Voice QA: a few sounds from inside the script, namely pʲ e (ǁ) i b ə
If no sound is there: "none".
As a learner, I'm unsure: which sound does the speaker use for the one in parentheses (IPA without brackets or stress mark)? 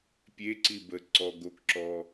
ǀ